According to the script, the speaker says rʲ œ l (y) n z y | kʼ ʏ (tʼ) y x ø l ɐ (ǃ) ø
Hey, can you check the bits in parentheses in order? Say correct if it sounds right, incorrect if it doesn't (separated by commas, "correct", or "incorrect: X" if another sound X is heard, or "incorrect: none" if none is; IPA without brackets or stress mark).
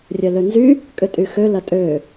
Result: incorrect: ø, correct, incorrect: tʼ